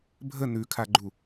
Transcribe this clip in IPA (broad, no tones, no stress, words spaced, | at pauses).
bʱə nʉkʰaɡ͡ǃu